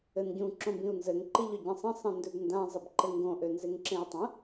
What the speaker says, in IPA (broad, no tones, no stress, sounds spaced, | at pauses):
ɘ n ɟ ũ ǁ õ b ĩ u̯ n z ɘ ŋ ǃ i ʎ ø ɟ ẽ sˤ ə̃ sˤ ẽ n d ø b n d ã zˤ ɘ b ǃ ɘ ŋ ɡ õ ʔ ø n z e ŋ ǁ ẽ i̯ tˤ ə̃